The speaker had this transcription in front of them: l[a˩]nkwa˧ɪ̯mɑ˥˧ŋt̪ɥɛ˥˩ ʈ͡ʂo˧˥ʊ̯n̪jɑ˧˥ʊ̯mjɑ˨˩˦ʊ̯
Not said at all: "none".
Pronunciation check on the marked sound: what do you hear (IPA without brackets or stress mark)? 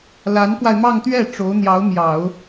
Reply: a˧˥